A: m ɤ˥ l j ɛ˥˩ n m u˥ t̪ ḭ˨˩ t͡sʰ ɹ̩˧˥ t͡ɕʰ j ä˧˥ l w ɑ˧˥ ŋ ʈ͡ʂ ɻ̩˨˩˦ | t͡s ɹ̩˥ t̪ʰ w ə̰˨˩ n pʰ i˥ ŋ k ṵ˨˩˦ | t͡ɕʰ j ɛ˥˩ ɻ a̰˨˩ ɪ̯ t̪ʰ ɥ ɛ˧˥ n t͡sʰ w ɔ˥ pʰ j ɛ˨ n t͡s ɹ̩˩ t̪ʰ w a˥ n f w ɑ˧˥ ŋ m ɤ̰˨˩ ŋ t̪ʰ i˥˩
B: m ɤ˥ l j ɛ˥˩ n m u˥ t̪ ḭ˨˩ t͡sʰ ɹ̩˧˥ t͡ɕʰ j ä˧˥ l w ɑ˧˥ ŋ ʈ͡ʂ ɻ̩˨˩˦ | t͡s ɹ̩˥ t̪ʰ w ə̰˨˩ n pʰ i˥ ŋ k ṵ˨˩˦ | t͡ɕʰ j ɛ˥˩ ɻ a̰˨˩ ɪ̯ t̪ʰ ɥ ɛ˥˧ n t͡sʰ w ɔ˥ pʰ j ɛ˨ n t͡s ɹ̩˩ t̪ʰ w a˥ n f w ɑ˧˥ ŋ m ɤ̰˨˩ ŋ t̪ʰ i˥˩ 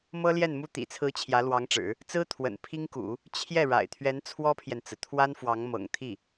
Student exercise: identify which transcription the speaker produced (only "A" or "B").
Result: A